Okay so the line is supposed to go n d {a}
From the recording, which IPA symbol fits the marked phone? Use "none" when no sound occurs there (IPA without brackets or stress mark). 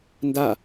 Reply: a